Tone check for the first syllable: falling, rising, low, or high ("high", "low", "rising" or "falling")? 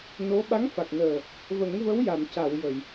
rising